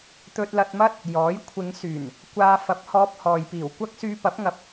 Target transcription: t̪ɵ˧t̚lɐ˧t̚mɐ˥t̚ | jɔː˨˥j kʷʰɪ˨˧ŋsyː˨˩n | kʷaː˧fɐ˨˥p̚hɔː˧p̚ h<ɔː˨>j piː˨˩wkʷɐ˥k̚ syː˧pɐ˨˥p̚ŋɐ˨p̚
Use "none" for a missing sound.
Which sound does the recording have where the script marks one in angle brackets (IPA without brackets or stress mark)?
ɔː˨